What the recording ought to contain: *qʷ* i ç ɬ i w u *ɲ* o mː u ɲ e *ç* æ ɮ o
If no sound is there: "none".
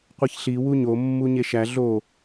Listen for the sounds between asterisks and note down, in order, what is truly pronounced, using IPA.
qʷ, ɲ, ʃ

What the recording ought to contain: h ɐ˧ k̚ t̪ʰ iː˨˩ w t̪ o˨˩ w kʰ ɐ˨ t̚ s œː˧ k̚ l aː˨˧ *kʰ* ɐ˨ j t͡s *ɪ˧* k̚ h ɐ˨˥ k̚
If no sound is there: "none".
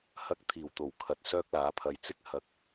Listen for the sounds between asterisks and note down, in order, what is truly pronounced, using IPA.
pʰ, ɪ˥

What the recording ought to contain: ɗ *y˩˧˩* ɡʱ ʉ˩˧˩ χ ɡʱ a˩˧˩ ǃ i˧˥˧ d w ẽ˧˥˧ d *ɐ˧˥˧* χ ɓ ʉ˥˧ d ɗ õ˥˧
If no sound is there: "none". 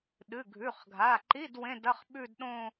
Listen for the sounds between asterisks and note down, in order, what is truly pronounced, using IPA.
ɨ˩˧˩, ɐ˧˥˧

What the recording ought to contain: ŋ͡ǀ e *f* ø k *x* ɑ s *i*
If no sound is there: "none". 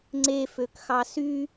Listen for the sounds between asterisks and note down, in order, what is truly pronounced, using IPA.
f, x, y

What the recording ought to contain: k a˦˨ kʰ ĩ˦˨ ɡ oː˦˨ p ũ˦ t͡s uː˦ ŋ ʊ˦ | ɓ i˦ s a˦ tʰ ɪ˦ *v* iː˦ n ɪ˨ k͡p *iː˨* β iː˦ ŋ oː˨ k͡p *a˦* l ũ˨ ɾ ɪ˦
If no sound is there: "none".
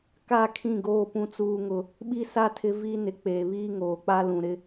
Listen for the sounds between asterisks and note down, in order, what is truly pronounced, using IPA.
v, eː˨, a˦

